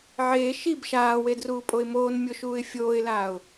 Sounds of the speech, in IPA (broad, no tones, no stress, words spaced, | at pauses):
ʕeː ʃib ʃaːwedruːpʼoɪ̯ moːnmʲoʃuːɪ̯ fʲoːɪ̯laːʊ̯